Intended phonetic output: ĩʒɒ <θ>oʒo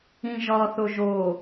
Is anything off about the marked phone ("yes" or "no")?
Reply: no